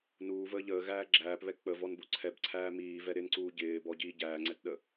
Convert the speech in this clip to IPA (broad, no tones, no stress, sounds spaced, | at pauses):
n uː v əː ʎ əː ɣ æː ɡ͡ǁ æː p β ɛ k͡p ə v ɔ n b u ǀʰ ɛ b ǀʰ æː m iː v ɛ ɾ ɪ n ǀ uː ɟ ɪː b ɔ ɟ iː ɟ æː ŋ͡ǀ ɛ t ɗ ə